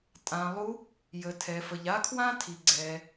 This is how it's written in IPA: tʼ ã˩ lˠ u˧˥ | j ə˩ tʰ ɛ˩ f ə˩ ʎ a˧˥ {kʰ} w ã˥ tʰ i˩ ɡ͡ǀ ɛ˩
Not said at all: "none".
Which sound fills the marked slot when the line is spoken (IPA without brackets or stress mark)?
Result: kʰ